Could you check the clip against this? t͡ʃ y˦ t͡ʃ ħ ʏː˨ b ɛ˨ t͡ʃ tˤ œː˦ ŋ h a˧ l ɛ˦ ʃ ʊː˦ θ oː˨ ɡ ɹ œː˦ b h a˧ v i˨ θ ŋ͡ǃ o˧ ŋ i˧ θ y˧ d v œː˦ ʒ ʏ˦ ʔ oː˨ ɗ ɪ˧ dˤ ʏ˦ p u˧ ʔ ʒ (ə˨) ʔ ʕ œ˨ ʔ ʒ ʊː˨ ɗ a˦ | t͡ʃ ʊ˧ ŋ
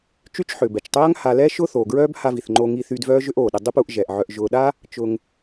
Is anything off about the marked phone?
yes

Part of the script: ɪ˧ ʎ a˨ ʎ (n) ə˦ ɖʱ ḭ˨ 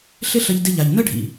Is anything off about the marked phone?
no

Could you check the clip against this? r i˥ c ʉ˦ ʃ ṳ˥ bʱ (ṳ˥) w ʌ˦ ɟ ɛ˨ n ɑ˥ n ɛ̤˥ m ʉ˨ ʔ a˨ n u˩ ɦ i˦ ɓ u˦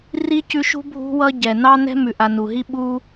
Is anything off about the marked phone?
yes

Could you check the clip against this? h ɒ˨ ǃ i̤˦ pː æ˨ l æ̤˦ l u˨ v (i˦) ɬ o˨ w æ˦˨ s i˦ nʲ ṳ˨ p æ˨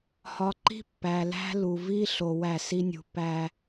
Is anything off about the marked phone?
no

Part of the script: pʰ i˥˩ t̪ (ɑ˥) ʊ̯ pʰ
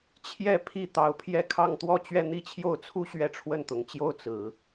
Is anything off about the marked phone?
yes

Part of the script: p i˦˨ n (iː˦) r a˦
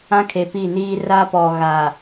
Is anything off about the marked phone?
no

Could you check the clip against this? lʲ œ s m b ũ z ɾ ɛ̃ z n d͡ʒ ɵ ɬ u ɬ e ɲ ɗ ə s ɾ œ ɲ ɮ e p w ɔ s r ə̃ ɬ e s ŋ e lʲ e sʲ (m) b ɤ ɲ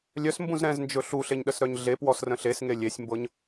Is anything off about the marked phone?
no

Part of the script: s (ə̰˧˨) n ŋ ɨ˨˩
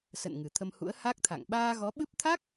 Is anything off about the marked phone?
no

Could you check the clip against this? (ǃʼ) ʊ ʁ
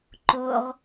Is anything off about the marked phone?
yes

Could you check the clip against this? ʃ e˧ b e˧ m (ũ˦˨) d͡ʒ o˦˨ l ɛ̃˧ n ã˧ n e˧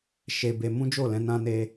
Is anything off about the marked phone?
yes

